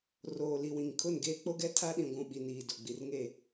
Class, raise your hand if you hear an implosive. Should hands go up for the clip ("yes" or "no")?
yes